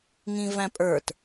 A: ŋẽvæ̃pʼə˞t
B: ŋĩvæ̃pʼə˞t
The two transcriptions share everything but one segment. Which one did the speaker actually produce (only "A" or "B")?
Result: B